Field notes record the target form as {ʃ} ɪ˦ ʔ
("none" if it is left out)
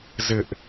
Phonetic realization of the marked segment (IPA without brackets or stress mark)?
z